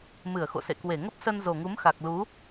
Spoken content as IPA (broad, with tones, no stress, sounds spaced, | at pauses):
m ɨ˧˩ ə̯ x o̰˧˨ s ḛ˧˨ k w e˧˩ ŋ ə˦˥ p̚ s ə˧ n z o˨˩ ŋ u˨˦ m x a˨˩ k̚ l u˨˦